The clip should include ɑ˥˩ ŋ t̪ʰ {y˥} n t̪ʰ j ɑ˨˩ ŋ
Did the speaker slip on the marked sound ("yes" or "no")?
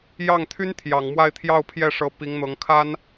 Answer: no